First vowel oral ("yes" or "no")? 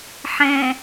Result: no